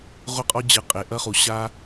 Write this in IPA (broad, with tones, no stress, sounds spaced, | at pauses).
ʁʷ ɘ˦ qʼ ɔ˦ d͡ʑ ɨ˧ qʼ e˧ ʔ ɐ˦ χ u˧ ɕ a˦